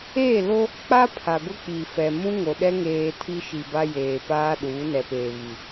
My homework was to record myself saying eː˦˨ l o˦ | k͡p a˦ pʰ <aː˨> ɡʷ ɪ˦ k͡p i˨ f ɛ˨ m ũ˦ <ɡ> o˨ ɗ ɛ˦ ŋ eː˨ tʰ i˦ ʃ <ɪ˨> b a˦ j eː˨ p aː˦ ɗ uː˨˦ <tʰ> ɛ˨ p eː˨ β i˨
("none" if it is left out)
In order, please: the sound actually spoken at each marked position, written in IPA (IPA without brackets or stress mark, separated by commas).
a˨, ŋ, i˨, n